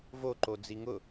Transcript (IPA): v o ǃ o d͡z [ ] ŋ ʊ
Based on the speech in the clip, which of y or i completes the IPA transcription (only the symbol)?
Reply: i